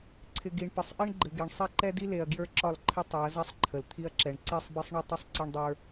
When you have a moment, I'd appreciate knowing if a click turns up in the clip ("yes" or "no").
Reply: yes